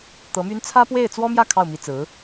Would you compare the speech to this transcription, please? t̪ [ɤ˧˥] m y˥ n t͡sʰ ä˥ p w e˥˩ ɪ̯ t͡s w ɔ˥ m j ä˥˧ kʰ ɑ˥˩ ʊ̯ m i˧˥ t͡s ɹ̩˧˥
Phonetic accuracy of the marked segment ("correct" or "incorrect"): correct